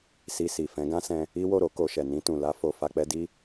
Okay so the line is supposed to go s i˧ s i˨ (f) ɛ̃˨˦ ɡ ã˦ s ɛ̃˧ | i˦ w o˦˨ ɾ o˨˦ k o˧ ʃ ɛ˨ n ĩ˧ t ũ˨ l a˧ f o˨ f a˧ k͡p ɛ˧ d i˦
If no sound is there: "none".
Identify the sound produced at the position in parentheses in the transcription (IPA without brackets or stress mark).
f